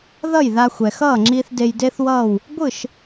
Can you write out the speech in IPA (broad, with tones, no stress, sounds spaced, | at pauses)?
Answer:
ð ʌ˥˩ j ð a˧ xʷ ɛ˩ x ʌː˥˩ ŋ͡ǁ iː˧ θ d e˧ j d e˥ θ w ʌː˥˩ w | ɡʷ ɯ˥˩ ʃ